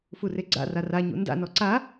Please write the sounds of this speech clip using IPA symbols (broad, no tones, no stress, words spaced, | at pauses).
fureɡ͡ǀa̰ rara ɲṵnda̰ nɔǀa